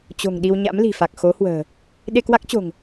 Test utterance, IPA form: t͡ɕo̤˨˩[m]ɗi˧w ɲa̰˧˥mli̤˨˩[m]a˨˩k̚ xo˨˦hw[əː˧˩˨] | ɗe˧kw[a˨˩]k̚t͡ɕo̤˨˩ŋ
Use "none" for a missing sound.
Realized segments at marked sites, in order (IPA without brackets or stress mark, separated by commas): ŋ, f, ə̤ː˨˩, a˦˥